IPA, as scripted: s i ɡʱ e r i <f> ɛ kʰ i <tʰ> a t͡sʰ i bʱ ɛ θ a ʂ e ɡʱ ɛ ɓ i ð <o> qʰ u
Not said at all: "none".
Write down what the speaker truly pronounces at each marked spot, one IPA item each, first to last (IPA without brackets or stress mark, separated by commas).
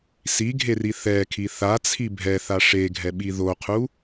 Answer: θ, θ, o